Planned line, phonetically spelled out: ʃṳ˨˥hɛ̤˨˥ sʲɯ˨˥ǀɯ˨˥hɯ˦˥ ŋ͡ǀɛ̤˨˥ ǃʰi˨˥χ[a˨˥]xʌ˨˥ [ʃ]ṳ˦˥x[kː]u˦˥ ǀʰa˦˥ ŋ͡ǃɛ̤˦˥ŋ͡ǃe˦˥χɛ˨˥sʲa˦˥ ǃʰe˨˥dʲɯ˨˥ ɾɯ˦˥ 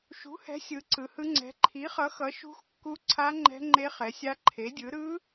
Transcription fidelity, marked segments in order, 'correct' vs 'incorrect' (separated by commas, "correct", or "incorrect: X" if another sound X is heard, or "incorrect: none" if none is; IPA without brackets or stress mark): incorrect: ʌ˨˥, correct, correct